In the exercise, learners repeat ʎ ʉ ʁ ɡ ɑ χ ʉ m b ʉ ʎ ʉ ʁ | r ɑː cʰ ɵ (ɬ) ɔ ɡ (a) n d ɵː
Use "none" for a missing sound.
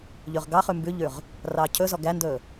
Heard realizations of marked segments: z, æ

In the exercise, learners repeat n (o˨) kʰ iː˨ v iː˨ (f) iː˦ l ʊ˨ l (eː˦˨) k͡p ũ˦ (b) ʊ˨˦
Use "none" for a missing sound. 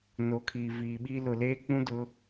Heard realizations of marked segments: o˨, ɓ, eː˦, d

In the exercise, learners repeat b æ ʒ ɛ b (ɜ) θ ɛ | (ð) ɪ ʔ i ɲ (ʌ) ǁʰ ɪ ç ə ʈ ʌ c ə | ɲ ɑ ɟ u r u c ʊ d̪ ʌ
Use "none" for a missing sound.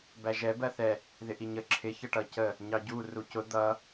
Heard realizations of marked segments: ɜ, ð, ə

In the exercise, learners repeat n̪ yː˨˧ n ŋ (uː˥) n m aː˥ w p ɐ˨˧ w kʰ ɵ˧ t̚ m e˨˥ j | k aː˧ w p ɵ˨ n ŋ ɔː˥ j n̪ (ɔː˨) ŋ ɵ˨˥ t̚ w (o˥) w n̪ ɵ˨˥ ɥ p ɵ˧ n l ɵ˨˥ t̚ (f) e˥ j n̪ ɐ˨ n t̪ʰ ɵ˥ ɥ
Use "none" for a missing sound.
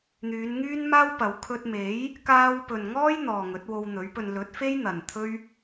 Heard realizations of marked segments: yː˥, ɔː˨, o˧, f

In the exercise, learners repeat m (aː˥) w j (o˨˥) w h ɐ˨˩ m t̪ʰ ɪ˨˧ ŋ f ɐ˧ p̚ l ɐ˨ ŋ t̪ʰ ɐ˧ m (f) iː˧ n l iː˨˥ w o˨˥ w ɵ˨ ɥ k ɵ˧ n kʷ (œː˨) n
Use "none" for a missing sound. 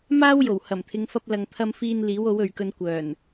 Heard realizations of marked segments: aː˥, o˨˩, f, œː˨˩

